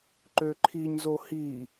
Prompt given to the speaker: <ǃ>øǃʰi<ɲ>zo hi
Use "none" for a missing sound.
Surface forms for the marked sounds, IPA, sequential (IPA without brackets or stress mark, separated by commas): ǃ, ɲ